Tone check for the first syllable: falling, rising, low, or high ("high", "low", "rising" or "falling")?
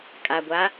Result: low